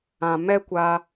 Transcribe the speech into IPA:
ã˨ m ɛ˦ kʷ a˧

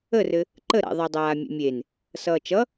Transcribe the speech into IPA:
ə r ɘ | ǃ ə ɾ a̰ ðˤ a dˤ aː mʲ ḛ mʲ e n | s ʌː t͡ʃ ʌ

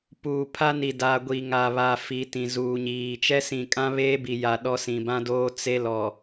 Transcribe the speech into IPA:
p uː˨ pʰ a˦ n i˨ d aː˨ ɡʷ i˨ ŋ a˨ β a˨ f i˨˦ t ĩ˨ z uː˨ ɲ iː˨ t͡ʃ ɛ˦ s ĩ˨ kʼ ã˦ β eː˦ b i˨ j a˨ ɗ ɔ˦ s ĩ˨ b ã˦ d oː˦ t͡s e˦ l ɔ˨

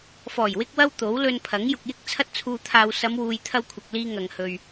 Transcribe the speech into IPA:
f ɔː˨˩ j w ɪ˧ k̚ w ɐ˧ w t̪ o˨˥ w l ɵ˧ n pʰ ɐ˨˥ ŋ j ʊ˨ k̚ j ɪ˧ k̚ t͡sʰ ɐ˧ t̚ t͡sʰ uː˨ t̪ʰ aː˨ w s ɐ˨˧ m w uː˨ j t̪ʰ ɐ˧ w kʷʰ ɐ˨ k̚ l iː˧ ŋ ɐ˨ ŋ h ɵ˨ ɥ

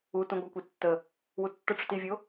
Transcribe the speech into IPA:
u t ũ ɡʷ a kʷ i tː ə | w u tː ə ʈ͡ʂ u t i vʲ o

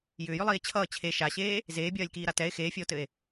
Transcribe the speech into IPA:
j ʏː j ʏ lˠ iː e̯ t͡ɕʰ ʌː t͡ɕʰ e ʃ a ɕ eː | z eː bʲ ɜː lʲ k iː ɾ a t ɛ e̯ x eː fʲ ɛ o̯ t ɘ e̯

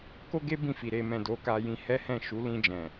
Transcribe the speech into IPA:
k o˦ ɡ e˦ b ĩ˦˨ f i˨ ɾ e˨ m ɛ̃˨ d o˨˦ k a˧ j ĩ˧ h ɛ˦ h ɛ̃˦˨ ʃ u˨˦ l ĩ˧ d͡ʒ ɛ̃˨

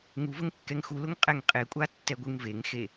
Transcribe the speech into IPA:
ŋ u v ə ŋ kː ɛ ŋ x u l ʊ ŋ qʼ ɛ ŋ qʼ e kʷʼ a tː ɛ ɡʷ ɯ ŋ v e ŋ x e

